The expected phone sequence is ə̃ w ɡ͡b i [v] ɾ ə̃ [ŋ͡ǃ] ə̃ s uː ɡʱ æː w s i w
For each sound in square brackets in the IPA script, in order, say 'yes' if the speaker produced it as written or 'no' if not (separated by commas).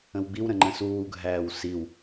no, yes